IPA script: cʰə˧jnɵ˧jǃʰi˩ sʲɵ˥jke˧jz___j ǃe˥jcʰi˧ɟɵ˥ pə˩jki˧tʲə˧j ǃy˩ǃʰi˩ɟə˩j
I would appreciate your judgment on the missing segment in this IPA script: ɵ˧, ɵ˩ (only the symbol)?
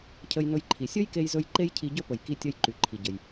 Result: ɵ˧